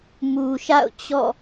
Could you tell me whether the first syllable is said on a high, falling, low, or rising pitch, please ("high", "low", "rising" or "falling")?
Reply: low